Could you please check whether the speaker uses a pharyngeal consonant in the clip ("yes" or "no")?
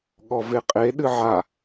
yes